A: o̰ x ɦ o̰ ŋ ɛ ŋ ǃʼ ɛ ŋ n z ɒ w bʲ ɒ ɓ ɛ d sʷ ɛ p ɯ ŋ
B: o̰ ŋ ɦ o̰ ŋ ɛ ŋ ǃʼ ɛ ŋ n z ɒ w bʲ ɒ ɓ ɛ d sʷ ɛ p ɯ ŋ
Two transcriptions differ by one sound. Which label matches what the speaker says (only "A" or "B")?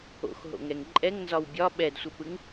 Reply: A